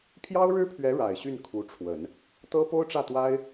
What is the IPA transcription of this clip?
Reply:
pʰjɑ˥ʊ̯ ɻɻ̩˥pʰɥɛ˧˥ ɻa˨˩ɪ̯ɕy˥˩nkʰu˧˥ʈ͡ʂʰwə˨˩˦n | t̪ɤ˥po˥ʊ̯ʈ͡ʂä˥˩ t̪wa˥ɪ̯

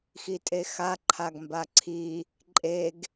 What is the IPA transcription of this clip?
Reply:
xitʼexa ǃʰaɡmbaǀʰi | ǃʼeɡ

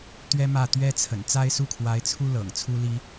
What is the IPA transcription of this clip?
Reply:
t̪ɥɛ˥mä˥˩ t̪ɥɛ˥t͡sʰə̰˨˩n t͡sa˥ɪ̯su˥˩kʰwa˧˥ɪ̯t͡sʰu˥ lɤ̰˨˩ŋt͡sʰu˥li˥

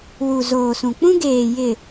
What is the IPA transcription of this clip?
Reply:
wu˨zoː˨sũ˨ k͡pũ˦ɡeː˨jɪ˨

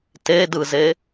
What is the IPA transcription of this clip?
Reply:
tedɯze

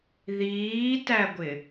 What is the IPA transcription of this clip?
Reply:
ðiːtæɡʷɪ

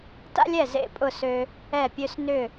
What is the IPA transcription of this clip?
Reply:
ta̰˥lʲɛ˥˩ zḛ˥˩pʼʊ˥˩sø˧ | ɛ˥˩pʲø˥s nʏ˥˩

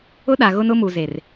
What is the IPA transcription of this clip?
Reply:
ʊ˦ɗa˨ ɣʊ˦nʊ˦ mu˨ ze˨r

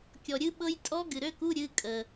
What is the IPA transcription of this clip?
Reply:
kʲɔ˩ɾʲɨ˦˥ɓɤ˦˥j tʼɔ˦˥ ɡɨ˩ɾø˧˥˧ku˧˥˧ ɾʲɨ˧˥˧ kʼə˩

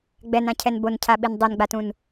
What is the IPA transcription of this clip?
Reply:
ɡ͡bɛnãcʰɛn boncʰaɓin dˤenɡ͡batũn

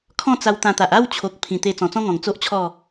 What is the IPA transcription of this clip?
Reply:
kʰɔ̃˥˧t͡sa˧wt̪ã˧t̪a˨ʔ a˥˧wt͡ɕʰo˨k̚ pʰĩ˨˩t̪e˧ t͡sɔ̃˨˩t͡sɔ̃˦ŋɔ̃˨˩ŋ t͡so˦ʔt͡ɕʰɔ˥˧

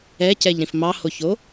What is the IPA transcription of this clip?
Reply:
ɛcɛʎɾĩf mɑhoço

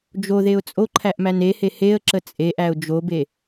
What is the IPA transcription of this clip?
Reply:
d͡ʒoðeʊ̯ t͡sʼoǃʰæʔmæn ehe heə̯ǁə t͡sʼeʔæʊ̯ d͡ʒobe

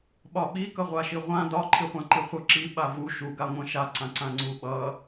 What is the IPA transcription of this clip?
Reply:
ɓɒɓi kʌʁʷaʃiʁʷã dɒ ǃʰiχʷãǃiχʷʌ ǁi ɓavu ʃu ɡaŋʷãʃa ǀãǀãŋ͡ǀu ɓʌ

